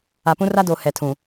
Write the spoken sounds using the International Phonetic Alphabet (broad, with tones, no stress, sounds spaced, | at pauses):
a˨ p ũ˦ r a˦ d o˨ h ɛ˨ tʰ ũ˨